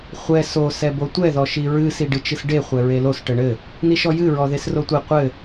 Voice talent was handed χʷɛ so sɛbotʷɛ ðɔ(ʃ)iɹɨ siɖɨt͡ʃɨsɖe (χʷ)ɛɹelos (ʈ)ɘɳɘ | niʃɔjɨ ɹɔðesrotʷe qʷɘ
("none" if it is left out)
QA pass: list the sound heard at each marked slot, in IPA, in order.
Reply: ʃ, χʷ, ʈ

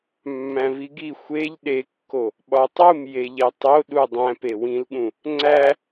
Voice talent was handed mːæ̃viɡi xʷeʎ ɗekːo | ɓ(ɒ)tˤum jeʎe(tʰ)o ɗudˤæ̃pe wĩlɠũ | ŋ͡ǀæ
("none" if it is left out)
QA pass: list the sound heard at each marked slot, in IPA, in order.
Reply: ɒ, tˤ

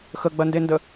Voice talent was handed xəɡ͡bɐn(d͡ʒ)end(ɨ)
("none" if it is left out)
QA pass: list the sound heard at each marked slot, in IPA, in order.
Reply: d, ə

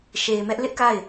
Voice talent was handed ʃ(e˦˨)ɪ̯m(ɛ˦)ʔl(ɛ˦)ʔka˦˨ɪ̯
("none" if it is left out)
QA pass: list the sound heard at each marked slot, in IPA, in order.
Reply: e˨, ɛ˦, ɪ˦

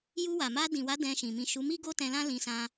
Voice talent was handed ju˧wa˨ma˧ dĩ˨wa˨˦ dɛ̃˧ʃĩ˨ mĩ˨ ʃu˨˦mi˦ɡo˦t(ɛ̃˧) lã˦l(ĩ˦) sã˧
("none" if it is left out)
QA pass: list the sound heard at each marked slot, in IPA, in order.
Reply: ɛ̃˧, ĩ˧

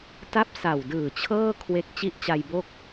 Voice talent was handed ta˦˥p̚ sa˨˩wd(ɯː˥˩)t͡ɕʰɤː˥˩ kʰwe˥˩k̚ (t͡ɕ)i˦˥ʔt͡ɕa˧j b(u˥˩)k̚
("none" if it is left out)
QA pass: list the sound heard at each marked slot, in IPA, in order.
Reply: ɯː˨˩, t͡ɕ, o˥˩

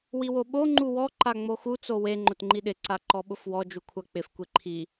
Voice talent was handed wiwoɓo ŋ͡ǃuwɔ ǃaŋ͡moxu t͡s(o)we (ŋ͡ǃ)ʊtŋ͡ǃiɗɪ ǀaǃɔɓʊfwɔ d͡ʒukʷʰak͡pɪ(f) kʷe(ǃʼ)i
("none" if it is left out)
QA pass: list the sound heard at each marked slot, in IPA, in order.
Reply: o, ŋ͡ǃ, f, ǃʰ

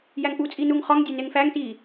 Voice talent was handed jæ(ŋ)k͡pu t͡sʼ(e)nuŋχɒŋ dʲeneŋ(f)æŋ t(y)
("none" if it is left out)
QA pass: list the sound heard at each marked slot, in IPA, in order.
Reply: ŋ, i, f, i

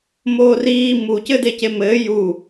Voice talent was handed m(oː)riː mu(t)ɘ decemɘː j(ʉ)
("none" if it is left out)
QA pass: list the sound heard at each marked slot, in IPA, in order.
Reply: oː, c, u

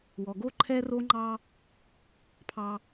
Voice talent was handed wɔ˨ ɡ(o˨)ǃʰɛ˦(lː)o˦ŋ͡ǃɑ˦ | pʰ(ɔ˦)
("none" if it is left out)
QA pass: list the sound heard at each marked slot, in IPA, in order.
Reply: o˦, r, ɑ˦

